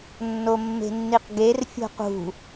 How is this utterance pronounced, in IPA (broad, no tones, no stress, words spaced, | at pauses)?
nːomːe̤nːiqɡer fʲo̤qṳ